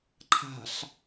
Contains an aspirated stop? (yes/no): yes